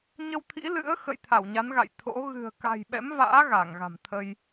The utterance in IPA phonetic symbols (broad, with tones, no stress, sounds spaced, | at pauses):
ɲ ə˧ w t̪ʰ ḭ˧˥ l ɨ̰˧˥ ə̯ x ə̰˧˨ j t̪ʰ a˧˩ w ɲ a˨˦ n ɣ a̰˧˨ j t̪ʰ o̰˧˥ ɣ ɨ̤˨˩ ə̯ k a̤˨˩ j ɓ ɛ̰˧˥ m v a̰ː˧˥ ɣ a˧˩ ŋ ɣ a̤˨˩ m t̪ʰ ə˧ j